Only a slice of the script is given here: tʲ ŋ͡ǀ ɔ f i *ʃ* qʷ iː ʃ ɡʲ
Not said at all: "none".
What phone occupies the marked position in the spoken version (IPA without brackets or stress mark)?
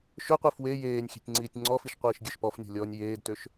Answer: ʃ